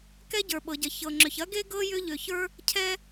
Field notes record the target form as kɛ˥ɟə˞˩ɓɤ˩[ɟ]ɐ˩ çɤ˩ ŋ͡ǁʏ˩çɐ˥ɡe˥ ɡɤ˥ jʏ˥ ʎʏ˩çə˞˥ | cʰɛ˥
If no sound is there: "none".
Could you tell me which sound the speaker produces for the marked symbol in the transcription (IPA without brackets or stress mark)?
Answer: ɟ